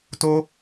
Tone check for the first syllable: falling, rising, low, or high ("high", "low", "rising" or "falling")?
high